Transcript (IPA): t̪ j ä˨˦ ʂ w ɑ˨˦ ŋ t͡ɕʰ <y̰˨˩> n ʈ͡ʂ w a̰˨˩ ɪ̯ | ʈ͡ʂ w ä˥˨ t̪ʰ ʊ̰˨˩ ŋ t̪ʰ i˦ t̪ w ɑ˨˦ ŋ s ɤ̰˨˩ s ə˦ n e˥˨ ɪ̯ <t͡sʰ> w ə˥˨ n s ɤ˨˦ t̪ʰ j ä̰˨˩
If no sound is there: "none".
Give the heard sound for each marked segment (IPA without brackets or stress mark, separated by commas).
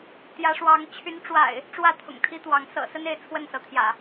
y˨˦, t͡sʰ